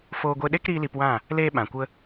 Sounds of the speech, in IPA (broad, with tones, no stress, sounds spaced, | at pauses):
f oː˧ ɡʷ e˧ ɗ e˦ k ɾ iː˦ l i˧ p w ã˦˨ | l eː˦ ɓ ã˨ kʷ ə˦